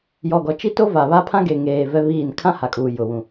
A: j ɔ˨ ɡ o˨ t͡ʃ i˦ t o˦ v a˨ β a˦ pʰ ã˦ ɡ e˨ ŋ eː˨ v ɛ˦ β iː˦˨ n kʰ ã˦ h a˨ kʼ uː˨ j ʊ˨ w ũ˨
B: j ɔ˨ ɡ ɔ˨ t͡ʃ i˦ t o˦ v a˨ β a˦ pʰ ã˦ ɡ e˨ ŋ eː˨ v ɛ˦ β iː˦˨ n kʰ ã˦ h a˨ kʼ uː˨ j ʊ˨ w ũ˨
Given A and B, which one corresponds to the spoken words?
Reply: B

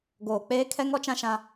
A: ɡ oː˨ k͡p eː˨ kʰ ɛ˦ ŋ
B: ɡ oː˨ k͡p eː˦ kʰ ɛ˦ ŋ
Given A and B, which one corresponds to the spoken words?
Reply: B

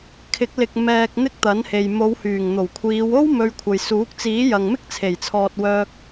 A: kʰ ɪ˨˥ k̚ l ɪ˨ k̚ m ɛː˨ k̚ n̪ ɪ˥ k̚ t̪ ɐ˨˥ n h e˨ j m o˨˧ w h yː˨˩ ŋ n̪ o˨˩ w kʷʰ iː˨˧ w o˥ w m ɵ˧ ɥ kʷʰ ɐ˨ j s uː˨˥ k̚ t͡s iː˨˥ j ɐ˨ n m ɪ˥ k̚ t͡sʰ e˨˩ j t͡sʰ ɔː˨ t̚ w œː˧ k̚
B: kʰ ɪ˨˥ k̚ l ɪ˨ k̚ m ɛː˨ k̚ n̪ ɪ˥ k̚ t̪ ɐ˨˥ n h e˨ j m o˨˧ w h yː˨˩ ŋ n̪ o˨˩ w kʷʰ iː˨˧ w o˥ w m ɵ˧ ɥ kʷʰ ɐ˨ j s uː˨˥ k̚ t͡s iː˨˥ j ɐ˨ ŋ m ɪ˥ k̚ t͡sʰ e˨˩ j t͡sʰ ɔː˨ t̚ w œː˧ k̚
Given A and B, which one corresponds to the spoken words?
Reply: B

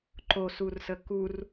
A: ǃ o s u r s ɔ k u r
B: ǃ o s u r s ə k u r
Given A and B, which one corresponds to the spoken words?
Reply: B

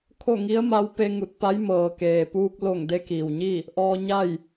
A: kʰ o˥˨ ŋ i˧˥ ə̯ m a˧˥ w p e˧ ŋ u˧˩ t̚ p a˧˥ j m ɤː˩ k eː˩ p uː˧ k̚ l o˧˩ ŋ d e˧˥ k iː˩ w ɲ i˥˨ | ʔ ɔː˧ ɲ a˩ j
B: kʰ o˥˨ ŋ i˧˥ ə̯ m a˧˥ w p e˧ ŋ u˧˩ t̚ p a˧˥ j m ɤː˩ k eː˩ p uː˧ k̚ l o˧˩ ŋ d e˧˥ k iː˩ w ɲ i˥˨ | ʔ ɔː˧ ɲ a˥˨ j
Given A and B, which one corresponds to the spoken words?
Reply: B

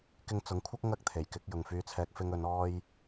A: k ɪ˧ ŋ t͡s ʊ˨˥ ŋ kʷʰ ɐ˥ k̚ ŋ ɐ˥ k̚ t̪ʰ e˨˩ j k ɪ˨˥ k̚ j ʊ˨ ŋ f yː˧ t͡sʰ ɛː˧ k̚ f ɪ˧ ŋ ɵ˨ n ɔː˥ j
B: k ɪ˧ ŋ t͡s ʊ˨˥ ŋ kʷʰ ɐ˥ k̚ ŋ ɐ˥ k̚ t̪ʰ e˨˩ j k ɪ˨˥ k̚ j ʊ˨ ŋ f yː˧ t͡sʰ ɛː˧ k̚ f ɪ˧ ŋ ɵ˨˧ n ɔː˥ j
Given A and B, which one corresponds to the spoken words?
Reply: B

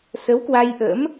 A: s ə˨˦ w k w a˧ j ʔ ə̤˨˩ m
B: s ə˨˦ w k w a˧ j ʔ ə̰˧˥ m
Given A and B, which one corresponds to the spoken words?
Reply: B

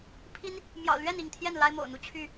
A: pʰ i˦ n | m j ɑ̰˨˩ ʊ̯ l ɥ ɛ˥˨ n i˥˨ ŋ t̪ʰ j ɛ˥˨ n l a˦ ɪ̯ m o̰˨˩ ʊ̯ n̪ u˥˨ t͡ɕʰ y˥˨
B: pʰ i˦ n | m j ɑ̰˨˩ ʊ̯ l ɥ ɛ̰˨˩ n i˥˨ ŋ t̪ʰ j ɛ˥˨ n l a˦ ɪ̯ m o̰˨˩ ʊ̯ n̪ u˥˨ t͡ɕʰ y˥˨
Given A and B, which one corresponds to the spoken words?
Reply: A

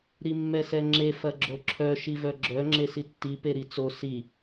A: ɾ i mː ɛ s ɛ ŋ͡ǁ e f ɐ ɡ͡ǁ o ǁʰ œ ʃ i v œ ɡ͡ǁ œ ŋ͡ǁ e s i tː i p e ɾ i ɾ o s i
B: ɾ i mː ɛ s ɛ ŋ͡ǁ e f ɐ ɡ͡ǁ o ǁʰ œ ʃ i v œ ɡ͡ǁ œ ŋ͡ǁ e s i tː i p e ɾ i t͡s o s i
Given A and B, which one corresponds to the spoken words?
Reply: B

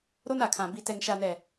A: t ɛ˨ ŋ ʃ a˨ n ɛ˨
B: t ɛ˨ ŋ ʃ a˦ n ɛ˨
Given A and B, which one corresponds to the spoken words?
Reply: A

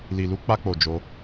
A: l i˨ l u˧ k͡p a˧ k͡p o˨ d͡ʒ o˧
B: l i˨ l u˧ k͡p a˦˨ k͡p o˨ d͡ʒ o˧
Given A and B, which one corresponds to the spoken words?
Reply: A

